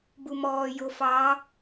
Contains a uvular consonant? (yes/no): no